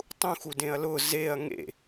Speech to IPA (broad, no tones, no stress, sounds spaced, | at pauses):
tˤ ũ x u d ẽ ɐ̯ l ʊː z e ɐ̯ ŋ ḛ